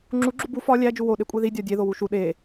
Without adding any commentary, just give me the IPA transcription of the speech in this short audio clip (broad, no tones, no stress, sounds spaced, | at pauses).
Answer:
ŋ͡ǁ u ɡ͡ǁ u b u f ɒ lʲ æ d͡ʒ u w o ɗ e kʷʼ e ð i dʲ ɒ dʲ e ð o w u ʃ u ɗ e